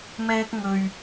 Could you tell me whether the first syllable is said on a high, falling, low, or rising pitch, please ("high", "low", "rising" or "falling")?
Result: high